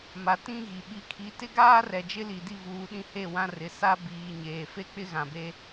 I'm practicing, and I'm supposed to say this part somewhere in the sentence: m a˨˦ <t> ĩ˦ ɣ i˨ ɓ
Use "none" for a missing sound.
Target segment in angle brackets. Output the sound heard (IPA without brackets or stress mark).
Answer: t